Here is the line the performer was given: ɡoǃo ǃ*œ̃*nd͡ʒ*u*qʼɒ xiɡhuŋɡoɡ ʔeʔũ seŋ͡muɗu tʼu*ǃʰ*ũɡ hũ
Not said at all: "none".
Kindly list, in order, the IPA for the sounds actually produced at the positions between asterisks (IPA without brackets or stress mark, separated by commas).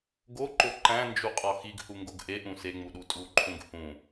æ̃, u, ǃʰ